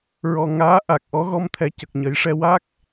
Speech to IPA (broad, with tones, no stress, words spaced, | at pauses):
ɹɔ˨˩ŋaː˧˥ ʔa˨˩k̚ʔɔ˧˥ɣɔ˧mt̪ʰɛ˨˩ cə˨˩k̚ɲə˨˩˦jʂɛ˧ wa˦˥k̚